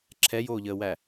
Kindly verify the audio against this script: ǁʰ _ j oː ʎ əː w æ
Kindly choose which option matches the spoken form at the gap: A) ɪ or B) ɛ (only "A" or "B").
B